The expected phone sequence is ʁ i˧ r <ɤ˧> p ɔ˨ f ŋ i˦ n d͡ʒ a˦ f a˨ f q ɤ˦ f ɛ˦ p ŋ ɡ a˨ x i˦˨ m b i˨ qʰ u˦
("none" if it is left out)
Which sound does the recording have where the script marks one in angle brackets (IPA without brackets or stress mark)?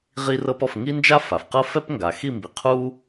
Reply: ɤ˧